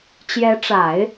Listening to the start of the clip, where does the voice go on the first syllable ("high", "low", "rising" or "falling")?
rising